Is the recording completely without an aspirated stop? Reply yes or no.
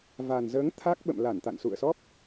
no